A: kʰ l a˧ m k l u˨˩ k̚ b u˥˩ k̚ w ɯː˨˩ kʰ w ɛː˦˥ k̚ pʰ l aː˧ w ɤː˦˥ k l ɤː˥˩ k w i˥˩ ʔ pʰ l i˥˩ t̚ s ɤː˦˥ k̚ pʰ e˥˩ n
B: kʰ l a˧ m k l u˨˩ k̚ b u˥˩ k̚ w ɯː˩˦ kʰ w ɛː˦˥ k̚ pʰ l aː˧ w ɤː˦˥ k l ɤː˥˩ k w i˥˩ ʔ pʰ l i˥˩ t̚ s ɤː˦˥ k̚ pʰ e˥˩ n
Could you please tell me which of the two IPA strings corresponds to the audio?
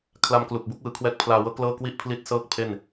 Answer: B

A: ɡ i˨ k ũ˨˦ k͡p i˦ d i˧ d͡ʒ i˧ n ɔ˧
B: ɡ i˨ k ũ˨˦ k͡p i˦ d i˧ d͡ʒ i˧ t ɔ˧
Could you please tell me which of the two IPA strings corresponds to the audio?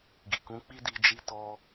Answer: B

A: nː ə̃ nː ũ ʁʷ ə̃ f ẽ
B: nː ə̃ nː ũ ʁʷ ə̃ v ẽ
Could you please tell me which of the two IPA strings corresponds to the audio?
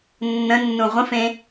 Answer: A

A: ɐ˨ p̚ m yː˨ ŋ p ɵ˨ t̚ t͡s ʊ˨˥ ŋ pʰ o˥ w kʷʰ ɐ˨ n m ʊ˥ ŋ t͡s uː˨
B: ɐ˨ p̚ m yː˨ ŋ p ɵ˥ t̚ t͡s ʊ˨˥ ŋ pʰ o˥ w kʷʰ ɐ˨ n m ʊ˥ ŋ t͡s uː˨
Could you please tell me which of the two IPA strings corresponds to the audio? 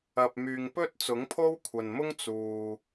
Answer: B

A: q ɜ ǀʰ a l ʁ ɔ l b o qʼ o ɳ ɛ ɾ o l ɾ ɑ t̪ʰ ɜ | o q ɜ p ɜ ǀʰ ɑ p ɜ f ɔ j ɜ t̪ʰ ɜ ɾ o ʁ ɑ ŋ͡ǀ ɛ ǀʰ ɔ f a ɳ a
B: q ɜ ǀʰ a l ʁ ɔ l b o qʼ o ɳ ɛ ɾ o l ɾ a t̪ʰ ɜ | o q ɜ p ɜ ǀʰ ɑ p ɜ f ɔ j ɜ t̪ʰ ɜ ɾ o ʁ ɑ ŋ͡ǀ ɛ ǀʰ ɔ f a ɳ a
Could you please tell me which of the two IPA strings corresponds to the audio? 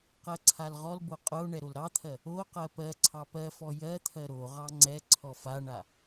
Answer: A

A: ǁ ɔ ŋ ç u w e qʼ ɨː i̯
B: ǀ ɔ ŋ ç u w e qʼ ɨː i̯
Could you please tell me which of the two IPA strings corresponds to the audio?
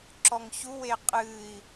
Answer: A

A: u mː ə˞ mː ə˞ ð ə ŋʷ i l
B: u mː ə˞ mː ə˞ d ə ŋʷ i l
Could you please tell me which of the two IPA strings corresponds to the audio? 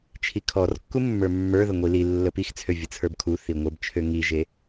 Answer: A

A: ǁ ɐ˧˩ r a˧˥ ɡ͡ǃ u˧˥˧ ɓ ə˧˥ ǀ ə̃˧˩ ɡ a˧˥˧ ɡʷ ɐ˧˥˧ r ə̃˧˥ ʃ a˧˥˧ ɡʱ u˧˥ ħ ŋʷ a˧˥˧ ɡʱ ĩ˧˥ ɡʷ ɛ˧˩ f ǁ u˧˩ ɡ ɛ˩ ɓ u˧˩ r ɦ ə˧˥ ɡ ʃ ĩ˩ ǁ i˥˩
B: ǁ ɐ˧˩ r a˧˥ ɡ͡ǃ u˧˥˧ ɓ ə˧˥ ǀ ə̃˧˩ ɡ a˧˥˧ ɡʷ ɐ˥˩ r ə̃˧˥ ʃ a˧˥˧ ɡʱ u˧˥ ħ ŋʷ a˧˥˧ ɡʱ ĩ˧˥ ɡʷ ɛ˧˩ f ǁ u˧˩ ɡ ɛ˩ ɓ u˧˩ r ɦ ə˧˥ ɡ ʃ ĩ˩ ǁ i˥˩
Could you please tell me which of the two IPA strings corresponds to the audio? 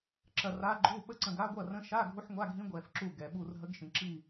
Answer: B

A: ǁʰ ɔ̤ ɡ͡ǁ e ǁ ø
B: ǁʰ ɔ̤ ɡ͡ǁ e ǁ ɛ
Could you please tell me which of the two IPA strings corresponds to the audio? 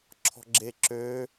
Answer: A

